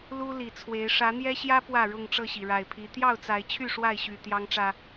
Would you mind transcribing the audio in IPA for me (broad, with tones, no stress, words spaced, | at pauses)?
lu˦ li˨˩t͡sʰwe˨˦ɪ̯ ʂä˨˦n̪jɛ˦ɕjä˦ pwä˥˨ɻʊ˥˨ŋʈ͡ʂɤ˥˨ɕi˩ ɻa˨˩ɪ̯pʰi˨˦ t̪jɑ˥˨ʊ̯t͡sa˨˦ɪ̯t͡ɕʰy˥˨ ʂwa˥˨ɪ̯ɕy˨˩ t̪jɑ˦ŋʈ͡ʂä˨˩